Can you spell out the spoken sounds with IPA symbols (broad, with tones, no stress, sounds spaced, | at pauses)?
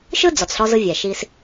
ʃ ɯ˥ d͡z ɔ˩ t͡s ɬ ɔ˧ z ɯ˧ vʲ ɛ˩ ʃ i˧ s